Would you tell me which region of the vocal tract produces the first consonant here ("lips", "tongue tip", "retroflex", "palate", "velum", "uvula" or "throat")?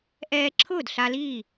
throat